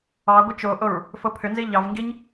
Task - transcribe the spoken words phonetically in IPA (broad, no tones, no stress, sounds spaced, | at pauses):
ɑ ɡʷ ɘ t͡ʃ o ʔ o ɹ | f o pʰ ʏ n z i ʎ ɑ v ŋ ɡ i ɲ